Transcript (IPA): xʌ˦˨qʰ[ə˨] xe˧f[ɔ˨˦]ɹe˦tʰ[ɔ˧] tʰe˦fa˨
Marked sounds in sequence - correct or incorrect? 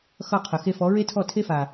correct, correct, incorrect: ɔ˦˨

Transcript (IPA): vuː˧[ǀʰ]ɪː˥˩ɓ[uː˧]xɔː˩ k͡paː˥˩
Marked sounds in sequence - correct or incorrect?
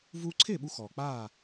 correct, incorrect: u˧

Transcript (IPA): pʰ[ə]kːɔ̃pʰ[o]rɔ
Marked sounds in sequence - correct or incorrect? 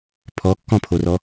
incorrect: ɔ, correct

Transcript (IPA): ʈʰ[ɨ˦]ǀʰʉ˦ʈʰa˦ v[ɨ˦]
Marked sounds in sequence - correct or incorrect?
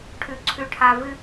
incorrect: ʉ˦, correct

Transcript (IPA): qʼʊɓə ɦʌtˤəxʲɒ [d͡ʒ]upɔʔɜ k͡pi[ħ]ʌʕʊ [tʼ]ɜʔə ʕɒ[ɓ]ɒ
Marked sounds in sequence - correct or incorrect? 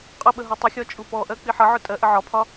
incorrect: t͡ʃʼ, correct, correct, incorrect: pʰ

